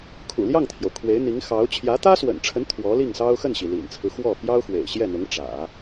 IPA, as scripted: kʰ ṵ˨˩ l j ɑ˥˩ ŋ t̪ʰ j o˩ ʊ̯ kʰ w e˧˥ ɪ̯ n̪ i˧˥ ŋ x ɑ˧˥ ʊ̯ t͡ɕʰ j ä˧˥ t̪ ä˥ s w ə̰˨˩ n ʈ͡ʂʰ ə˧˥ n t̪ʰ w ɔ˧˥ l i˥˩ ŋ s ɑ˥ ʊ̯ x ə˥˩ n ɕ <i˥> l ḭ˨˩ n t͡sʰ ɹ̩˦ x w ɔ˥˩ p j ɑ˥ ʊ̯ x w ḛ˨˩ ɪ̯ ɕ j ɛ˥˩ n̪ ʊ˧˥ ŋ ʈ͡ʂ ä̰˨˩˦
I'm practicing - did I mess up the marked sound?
yes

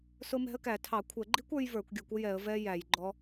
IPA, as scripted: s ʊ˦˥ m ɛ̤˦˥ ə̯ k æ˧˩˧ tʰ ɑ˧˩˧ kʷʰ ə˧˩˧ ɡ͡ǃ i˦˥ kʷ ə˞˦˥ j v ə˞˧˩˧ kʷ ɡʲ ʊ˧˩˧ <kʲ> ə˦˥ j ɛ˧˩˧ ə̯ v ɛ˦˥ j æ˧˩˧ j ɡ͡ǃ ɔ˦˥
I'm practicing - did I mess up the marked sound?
yes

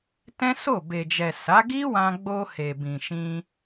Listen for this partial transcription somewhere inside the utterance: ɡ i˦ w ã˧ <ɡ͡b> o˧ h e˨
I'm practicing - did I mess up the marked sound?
no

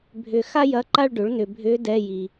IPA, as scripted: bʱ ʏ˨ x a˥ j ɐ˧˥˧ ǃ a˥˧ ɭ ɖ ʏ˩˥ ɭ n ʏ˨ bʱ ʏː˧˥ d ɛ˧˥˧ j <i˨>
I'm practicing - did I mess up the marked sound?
no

